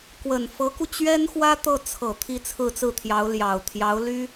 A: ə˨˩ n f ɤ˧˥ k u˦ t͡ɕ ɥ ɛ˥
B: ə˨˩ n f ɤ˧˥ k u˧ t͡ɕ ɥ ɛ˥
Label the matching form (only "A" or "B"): B